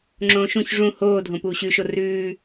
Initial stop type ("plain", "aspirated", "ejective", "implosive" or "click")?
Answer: click